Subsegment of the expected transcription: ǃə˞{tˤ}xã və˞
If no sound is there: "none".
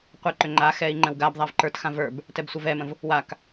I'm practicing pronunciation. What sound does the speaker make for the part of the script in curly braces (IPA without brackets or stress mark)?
t